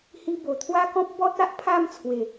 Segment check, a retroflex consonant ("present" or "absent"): absent